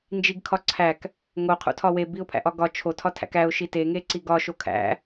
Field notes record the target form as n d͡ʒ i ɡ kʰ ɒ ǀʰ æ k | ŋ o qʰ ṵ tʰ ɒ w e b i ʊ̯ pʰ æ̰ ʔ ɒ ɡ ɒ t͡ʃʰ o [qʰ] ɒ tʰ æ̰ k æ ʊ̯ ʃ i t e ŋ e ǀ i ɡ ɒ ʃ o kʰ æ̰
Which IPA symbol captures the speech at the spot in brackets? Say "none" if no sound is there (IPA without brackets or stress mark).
tʰ